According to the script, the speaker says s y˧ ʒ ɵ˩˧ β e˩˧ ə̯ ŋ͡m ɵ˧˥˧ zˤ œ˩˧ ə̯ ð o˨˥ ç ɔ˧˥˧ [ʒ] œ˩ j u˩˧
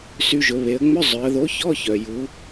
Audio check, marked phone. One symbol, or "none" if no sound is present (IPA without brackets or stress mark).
ç